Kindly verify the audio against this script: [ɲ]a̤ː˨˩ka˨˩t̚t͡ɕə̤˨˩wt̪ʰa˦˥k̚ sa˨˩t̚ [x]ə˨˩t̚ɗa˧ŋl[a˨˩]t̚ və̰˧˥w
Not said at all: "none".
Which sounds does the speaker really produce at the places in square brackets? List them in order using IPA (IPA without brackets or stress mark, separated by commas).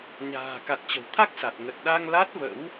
ɲ, ŋ, a˦˥